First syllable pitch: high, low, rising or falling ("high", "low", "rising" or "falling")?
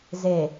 low